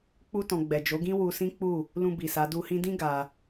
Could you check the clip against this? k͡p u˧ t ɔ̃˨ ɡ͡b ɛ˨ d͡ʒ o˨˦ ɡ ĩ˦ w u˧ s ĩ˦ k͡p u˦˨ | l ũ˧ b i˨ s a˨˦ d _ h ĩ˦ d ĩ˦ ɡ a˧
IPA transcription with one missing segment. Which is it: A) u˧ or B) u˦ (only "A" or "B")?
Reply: A